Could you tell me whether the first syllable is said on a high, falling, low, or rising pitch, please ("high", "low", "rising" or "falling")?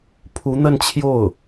rising